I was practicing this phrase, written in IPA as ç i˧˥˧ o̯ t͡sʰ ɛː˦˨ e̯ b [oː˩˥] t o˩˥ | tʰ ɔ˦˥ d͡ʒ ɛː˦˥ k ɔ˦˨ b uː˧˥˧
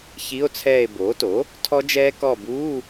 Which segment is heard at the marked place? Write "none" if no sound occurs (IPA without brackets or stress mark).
oː˩˥